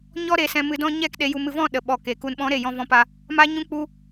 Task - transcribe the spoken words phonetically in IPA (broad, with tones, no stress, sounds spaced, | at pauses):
ɲ ɔ˦ ɾ e˧ s ɛ̃˧ m ɨ˧ d ɔ̃˦ ɲ ɛ˦ k ɗ e˧ j u˧ m ɨ˧ v ɔ̃˦˨ ɗ ə˨ ɓ ɔ˨ k e˨ k u˨ n ɓ ɔ̃˨˦ ɾ e˨ j ɔ̃˧ v ɔ̃˧ p a˧ | m a˦ ɲ ũ˦ k͡p u˦